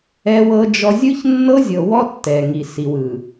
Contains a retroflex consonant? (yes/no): no